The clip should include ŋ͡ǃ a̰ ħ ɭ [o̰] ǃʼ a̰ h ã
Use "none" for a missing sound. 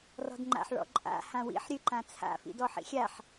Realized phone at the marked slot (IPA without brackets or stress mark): ɔ̰